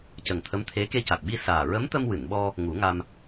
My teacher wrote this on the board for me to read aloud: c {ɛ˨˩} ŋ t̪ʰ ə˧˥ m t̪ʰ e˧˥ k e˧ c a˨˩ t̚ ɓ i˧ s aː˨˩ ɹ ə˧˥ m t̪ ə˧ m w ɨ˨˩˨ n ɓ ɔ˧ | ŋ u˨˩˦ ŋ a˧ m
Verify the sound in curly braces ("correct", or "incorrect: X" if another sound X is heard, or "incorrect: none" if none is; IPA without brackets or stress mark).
incorrect: ə˨˩